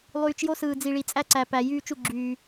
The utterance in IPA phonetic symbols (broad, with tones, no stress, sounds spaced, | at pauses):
lˠ yː˨ t͡ʃ j o˦ s ɯː˨ d͡z i˨ ɭ i˨ t͡sʼ æ˦ ǀ æ˨ p æ˨ j yː˦ t͡ʃ u˦˨ ɡ͡ǁ yː˨